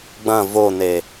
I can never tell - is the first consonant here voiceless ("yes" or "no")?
no